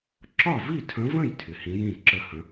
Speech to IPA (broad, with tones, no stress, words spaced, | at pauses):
ǁɒ˥˨vi˥˨tʰə̃˧˥və̃˥˨j tʰɪ˨hĩ˧˥jĩ˥˨ǁə˥˨ hə̃˧˥